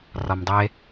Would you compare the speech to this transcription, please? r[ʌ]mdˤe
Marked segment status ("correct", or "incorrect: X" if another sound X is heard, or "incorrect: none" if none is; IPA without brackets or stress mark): incorrect: ɒ